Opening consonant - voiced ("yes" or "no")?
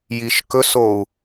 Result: yes